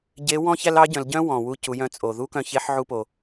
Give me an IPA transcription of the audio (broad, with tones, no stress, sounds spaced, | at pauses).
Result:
ɟ e˧˥ w ɔ̃˥ ç æ˥ l ɑ˧˥ ɟ œ̃˩˧ l ɟ œ̃˥ w ɔ̃˩ w u˧ c u˩˧ j œ̃˧ t͡sʼ o˩ ð u˥ k œ̃˧ ç e˧˥ ħ ʕ u˧ p o˩